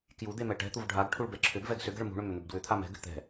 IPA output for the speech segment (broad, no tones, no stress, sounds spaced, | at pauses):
k j u d̪ e m ɛ ʈ ɛ̤ t̪ u v ɖʱ a ɡ ʈʰ u ɭ b ɛ ǁʰ ʏ b v ɛ ɡ s ʏ ɡ ɛ̤ ɭ m ṳ ɳ ʏ m ʏ n̪ ʏ b d w ʏ t̪ʰ a m ɛ̤ ɡ ʏ t̪ ɛ̤